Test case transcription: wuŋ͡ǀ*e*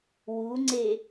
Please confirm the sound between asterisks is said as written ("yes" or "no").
yes